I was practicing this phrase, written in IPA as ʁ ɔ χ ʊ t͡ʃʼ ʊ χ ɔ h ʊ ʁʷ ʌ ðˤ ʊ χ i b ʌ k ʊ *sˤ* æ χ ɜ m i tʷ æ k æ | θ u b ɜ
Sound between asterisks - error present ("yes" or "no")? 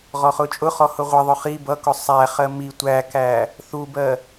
no